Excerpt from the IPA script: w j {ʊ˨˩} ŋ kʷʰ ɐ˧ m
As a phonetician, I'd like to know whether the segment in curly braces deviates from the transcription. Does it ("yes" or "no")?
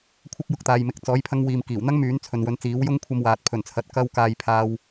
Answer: yes